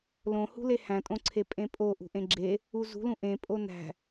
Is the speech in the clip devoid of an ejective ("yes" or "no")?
no